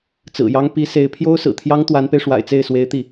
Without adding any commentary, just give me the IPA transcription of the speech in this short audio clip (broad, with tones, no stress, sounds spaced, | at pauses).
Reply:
t͡s ɹ̩˨˩ j ɑ˥ ŋ p i˧˥ s e˧˥ ɪ̯ pʰ j o˥ ʊ̯ s ɹ̩˨˩ t̪ʰ j ɑ˥ ŋ t̪ w a˧˥ n p e˧ ɪ̯ ʂ w a̰˨˩ ɪ̯ t͡s e˥˩ ɪ̯ s w e˧˥ ɪ̯ t̪ i˥˩